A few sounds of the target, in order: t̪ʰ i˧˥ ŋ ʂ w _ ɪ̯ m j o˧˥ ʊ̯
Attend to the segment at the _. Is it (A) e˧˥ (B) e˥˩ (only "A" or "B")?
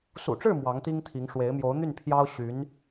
A